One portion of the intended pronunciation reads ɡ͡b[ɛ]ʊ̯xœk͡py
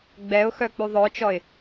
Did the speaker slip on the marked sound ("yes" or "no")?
no